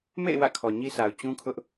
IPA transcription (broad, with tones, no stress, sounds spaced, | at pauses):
m ḛ˦˨ ɪ̯ w ä̰˦˨ kʰ ɔ˨ ɲ i˦ sʰ a˨ ʊ̯ t͡ɕ ũ˦ kʰ ʊ˦ ʔ